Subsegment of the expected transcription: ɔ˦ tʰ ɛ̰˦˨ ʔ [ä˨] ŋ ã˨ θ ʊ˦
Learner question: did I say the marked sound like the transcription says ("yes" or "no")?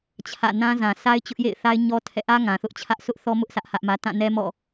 no